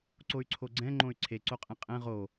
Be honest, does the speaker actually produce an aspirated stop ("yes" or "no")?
yes